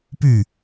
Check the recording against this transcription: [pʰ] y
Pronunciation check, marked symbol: incorrect: p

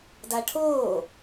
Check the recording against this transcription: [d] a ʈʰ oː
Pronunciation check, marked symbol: correct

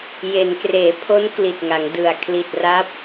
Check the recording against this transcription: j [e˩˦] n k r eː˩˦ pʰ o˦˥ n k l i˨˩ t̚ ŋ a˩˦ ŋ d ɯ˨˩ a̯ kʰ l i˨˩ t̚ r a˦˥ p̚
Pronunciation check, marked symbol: correct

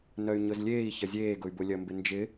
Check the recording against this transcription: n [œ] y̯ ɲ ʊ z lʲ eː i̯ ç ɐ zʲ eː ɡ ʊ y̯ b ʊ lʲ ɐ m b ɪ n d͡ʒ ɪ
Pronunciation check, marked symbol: correct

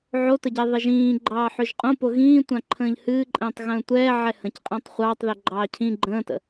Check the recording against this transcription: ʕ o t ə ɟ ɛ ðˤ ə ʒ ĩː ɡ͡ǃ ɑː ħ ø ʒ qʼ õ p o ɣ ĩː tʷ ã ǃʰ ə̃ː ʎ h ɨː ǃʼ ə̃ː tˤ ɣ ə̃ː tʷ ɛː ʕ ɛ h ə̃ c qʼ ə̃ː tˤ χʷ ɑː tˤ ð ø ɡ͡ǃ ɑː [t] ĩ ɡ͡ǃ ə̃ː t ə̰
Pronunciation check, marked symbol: incorrect: cʰ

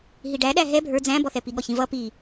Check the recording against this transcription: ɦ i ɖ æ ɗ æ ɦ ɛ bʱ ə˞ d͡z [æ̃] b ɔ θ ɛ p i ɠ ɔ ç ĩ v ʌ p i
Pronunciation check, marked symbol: correct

